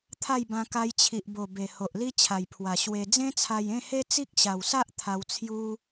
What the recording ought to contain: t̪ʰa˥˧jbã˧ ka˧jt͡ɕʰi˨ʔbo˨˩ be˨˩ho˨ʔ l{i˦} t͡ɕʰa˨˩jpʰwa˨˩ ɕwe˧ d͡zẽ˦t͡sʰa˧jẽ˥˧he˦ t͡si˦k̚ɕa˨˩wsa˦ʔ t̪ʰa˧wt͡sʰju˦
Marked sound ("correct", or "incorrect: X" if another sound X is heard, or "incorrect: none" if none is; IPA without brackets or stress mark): correct